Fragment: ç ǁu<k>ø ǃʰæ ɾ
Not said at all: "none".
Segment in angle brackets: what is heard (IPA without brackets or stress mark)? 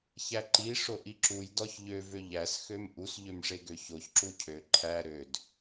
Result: cʰ